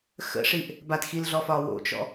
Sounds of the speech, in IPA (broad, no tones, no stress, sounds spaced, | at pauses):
x ə̰ ʂ i ʔ | b a t x i l ɮ ɔ f ɒː w o̰ t͡ʃ ɔ̰